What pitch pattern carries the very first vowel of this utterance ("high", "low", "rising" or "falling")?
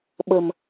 low